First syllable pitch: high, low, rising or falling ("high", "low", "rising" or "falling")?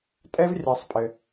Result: high